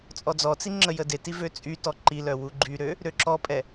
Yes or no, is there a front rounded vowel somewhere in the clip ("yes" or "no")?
yes